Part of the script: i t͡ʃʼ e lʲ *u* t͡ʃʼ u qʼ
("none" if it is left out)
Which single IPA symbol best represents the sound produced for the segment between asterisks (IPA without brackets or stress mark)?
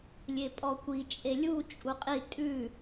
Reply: u